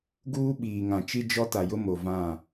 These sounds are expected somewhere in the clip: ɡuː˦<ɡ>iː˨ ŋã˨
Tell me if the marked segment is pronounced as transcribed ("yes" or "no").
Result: no